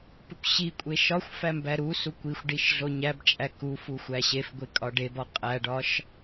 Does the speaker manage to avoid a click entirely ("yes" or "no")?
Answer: yes